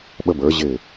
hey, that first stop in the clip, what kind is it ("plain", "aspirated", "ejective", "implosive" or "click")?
implosive